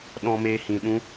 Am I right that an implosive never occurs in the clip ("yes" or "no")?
no